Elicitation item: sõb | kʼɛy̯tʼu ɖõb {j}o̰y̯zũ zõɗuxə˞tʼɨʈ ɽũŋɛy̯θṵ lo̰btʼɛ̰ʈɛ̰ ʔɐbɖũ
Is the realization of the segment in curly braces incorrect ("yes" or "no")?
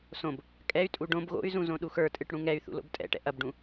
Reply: yes